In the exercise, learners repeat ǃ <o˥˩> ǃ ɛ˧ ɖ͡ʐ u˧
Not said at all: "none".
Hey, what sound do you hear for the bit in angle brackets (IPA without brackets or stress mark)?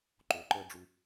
o˩˧